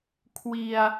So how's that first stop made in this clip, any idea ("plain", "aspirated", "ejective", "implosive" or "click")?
aspirated